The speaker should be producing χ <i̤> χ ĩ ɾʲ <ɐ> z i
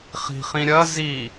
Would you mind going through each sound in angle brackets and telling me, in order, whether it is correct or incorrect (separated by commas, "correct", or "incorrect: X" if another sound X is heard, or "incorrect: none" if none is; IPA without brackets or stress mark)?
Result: correct, correct